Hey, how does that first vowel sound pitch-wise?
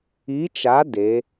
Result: rising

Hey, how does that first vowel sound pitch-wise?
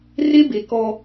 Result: high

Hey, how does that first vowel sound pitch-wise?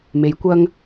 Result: rising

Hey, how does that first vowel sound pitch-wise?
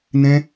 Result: high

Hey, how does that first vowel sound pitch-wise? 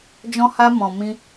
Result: high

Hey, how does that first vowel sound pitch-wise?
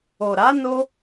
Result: low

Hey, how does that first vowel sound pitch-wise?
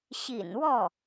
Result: low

